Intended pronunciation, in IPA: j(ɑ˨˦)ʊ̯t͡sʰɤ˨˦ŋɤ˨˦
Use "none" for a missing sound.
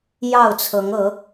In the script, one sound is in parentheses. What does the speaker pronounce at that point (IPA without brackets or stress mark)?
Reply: ɑ˥˨